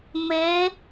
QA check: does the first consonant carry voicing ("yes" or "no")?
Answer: yes